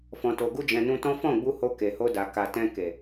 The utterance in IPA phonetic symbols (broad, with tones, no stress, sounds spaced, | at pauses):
f ɔ̃˨ t o˨ ɡ u˧ d͡ʒ ɛ̃˨ n ũ˧ t ɔ̃˦ f ɔ̃˦˨ ɡ͡b u˧ h o˧ k e˨ h o˧ d a˨ k a˨ t ɛ̃˧ k e˨